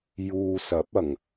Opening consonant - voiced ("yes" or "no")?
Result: yes